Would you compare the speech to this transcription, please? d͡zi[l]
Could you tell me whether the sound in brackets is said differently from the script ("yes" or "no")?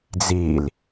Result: no